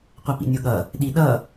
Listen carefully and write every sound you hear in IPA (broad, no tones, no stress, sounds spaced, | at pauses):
qʷ ʌ p ḭ nʲ o ɠ ʌ | ɗ i ɗ ʌ